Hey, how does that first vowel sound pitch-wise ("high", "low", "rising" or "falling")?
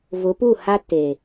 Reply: rising